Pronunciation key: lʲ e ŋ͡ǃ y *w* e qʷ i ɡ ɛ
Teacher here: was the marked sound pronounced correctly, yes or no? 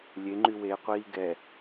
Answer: yes